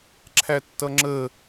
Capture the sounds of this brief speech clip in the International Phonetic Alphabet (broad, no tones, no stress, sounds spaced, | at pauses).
ǁʰ æ tː ʌ ŋ͡ǁ ə